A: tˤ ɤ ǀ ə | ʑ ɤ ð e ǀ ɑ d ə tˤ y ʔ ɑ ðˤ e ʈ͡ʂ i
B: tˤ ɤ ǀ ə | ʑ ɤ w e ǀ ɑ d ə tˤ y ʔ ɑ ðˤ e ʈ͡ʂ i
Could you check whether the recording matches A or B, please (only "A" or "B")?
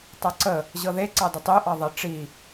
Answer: A